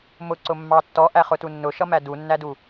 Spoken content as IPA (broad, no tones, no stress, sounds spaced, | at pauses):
m ʊ ǀ ʊ mː ɑ tː ɔ ʔ æ χ ʊ t u nː ʊ ʃ ʌ m æ d u nː æ d u